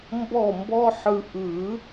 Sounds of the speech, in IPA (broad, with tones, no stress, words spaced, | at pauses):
mbɔ˥˨mbɔ˥ħɯ˧ ʔɯ˨˩˦